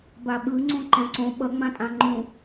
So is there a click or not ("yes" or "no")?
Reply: yes